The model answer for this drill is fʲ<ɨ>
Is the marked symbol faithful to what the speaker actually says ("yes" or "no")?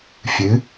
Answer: yes